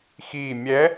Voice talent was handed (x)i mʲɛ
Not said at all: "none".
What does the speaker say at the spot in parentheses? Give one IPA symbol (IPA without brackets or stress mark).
x